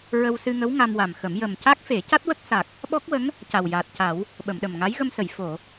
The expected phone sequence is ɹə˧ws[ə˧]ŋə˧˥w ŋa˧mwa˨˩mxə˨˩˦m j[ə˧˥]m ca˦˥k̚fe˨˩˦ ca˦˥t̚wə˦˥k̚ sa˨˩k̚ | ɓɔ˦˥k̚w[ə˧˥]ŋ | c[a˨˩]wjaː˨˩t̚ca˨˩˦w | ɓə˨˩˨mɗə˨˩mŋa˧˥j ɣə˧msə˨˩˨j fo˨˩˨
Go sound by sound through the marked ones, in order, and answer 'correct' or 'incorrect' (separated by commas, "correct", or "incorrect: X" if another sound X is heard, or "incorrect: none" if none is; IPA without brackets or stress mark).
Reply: incorrect: ɨ˧, incorrect: ə˨˩, correct, correct